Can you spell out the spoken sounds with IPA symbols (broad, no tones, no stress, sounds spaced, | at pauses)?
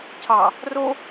cʰ ɑ | r o